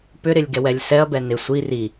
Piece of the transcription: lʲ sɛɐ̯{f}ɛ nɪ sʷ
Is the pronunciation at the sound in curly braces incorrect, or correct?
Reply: incorrect